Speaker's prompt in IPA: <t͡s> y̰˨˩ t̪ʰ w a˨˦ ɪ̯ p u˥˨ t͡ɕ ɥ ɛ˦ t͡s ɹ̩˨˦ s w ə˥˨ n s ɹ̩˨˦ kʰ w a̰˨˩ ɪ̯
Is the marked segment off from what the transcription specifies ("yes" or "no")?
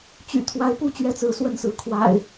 yes